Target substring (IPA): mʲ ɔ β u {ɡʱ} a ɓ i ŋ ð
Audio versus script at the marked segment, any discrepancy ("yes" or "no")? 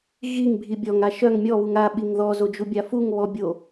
yes